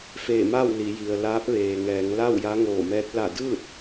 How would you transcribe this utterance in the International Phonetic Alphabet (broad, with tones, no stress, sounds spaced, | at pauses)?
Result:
f eː˧˩ m aː˥˨ w l i˩˧ j i˩ ə̯ l aː˧˥ p̚ ʋ eː˩ ŋ ɛː˩˧ ŋ l a˥˨ w j a˧˥ ŋ oː˧˩ m ɛː˧˥ t̚ l a˧˩ d ɯː˥˨ t̚